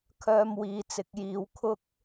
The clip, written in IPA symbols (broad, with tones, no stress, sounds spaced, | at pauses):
kʰ œː˧ m w iː˨ t͡s ɪ˨˥ k̚ j iː˨˧ w kʰ ʊ˥ k̚